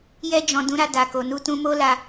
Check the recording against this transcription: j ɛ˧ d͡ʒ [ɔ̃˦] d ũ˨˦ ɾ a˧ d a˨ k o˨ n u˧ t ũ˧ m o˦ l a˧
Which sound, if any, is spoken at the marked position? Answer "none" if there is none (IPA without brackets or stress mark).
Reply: ɔ̃˨